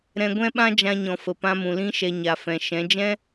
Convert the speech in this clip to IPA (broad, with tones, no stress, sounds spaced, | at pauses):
ɾ ɛ̃˧ ɡʷ ɛ̃˦ ɓ ã˦ d͡ʒ ã˧ ɲ ɔ̃˨ f ə˨ p ã˧ m ũ˨ l ĩ˦ ʃ ɛ˧ ɲ a˨ f ɛ̃˨ ʃ ɛ̃˨˦ d͡ʒ ɛ̃˦